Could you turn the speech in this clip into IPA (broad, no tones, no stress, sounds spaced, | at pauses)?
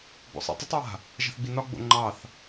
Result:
b o̰ sˤ ḭ tˤ ə tˤ ɹ a̤ | ʒ a̤ θ ɡ͡b i n ɒ ɡ͡b o̰ ŋ͡ǃ ɑ θ